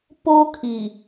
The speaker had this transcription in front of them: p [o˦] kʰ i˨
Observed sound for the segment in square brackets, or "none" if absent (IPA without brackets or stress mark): o˦